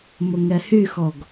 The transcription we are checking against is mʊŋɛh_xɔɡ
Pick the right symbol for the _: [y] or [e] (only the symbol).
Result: y